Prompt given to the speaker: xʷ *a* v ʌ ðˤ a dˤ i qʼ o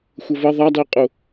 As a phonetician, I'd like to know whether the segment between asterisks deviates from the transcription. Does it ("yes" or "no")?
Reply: yes